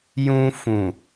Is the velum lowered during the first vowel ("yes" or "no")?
yes